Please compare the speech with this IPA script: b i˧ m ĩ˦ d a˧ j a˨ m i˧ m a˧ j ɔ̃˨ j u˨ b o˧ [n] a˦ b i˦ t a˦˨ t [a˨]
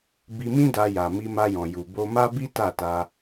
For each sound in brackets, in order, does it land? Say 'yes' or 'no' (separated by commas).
no, no